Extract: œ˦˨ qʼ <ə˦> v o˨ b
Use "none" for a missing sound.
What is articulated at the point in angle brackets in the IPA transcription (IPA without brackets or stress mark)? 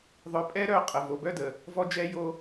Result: ə˨